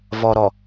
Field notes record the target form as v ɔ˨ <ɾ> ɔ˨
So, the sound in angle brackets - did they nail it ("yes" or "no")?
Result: yes